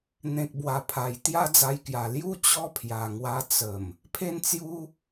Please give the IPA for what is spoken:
n̪ẽ˨k̚ bwa˨˩pʰa˨˩j t̪ja˦d͡za˧jkja˨˩ lju˦ t͡ɕɔ˦pʰja˨˩ŋwa˧ t͡sə˨˩m | pʰe˧nt͡sju˧

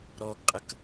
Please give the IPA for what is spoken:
ɾɔɡqʼək

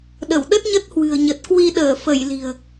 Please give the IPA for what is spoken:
ɗə˧˩wɗə˦˥t̚ɲə˦˥t̚ hwɨ̤˨˩ə̯ɲə˨˩t̚kwi˧ ɗəː˧˩fə˧˩j li̤˨˩ə̯

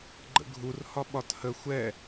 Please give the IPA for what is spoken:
ɡ͡ǃə̰ɡʱur hɒɓɒthə xʷɛ

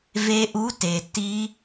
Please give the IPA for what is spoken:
ve˦˥ʔu˧˥˧te˩ ti˦˥

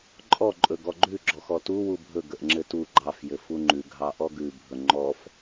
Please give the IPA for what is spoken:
ǃʼɔ ǃʼɵɡɔɡ͡ǃʉ ɡ͡ǁɔxɔtu wubʱɵ ɡəʔŋ͡ǁɘtu ɡ͡ǃɑf jɘfuŋ͡ǃʉ ɡʱɑʔɔɡʉ bʱɵŋ͡ǃɔf

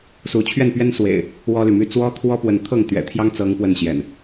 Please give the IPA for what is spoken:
su˨˦ t͡ɕʰɥɛ˥˨npɥɛ˦nswḛ˨˩ɪ̯ | wɔ˦ly˨my˥˨ t͡swɔ˦t̪ʰwɔ˦pwə˨nt̪ʰɤ˥˨ŋ t̪ɥɛ̰˨˩t̪ʰjɑ˦ŋ t͡sɤ˦ŋ pwə˥˨nɕjɛ̰˨˩n

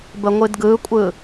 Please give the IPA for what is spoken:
bəŋʷɨdɡɯkʷʼɯ

